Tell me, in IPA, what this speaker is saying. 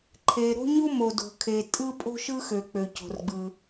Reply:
ǃʰ e˩ ɾ o̤˥ ɲ u˥ m o˩ d o̤˩ kʰ e˩ tʼ ɯ˥ pʼ o̤˥ ʃ ɯ˥ x ø˩ k͡p ø˩ c o̤˩ r ɡ͡b ɯ˩

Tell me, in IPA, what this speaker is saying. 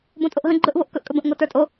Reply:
b õ tʼ o ʔ ɦ ə̃ ɡ͡ǃ ɵ ʔ v o ʔ k ɵ ʔ kʼ ɵ b ə̃ ʔ ŋ o t ə˞ tʼ o

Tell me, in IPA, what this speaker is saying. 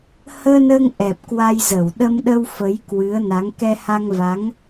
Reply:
h əː˧ n əː˧ ŋ ʔ ɛ˨˩ p̚ k w a˧ j z ə˧˩ w ɗ ə˧ m ɗ ə˧ w f ə˨˦ j k w ɨ˨˦ ə̯ n a˨˦ ŋ k ɛ˧ h a˧ ŋ v a˨˦ ŋ

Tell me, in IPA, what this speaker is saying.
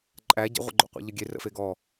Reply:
ǃʼ æ ɟ ə̰ ʁʷ ə̰ ɡ͡ǃ o̰ qʷ a̰ ʎ ə ɡʲ e r ə̰ f e ɡ ɔ

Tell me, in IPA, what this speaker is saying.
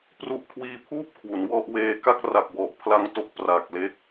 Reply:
p r u˦˥ ʔ kʰ w iː˧ pʰ uː˥˩ p̚ kʰ w u˩˦ n w ɔ˥˩ ʔ w eː˧ k a˥˩ k̚ r a˨˩ k̚ w ɔ˨˩ ʔ pʰ l a˧ ŋ t o˦˥ k̚ p r a˨˩ k̚ l e˦˥ k̚

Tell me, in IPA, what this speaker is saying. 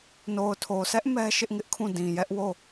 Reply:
n o˨ ʊ̯ tʰ o˨ sʰ ɛ˦ ʔ m ɛ˦ ʃ ɪ˦ ʔ ŋ ɪ˦ ʔ kʰ ũ˦˨ d ĩ˨ j ɛ˦ ʔ w o˦˨

